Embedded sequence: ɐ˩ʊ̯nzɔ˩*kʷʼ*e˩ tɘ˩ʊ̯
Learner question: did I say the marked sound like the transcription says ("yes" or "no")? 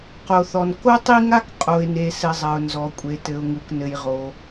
yes